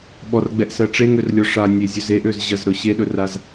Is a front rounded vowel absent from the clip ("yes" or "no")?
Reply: no